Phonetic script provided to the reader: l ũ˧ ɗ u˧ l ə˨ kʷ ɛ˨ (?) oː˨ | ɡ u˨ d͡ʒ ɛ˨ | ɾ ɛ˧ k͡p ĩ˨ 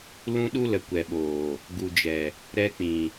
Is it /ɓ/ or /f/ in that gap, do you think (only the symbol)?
ɓ